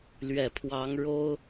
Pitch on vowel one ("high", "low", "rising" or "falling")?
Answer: low